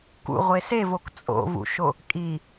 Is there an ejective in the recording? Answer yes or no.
yes